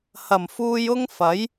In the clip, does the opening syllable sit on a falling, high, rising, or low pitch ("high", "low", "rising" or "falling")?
low